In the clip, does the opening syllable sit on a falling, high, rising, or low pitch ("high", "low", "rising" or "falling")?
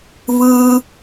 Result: low